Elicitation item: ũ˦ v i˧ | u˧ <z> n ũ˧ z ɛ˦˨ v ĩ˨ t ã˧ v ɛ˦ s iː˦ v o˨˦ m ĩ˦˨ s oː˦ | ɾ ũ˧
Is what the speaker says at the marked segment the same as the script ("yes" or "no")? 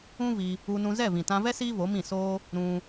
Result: no